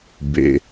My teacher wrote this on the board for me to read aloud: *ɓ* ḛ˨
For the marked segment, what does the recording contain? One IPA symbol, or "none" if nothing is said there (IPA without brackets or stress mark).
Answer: b